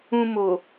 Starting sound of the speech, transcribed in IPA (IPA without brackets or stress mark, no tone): ũ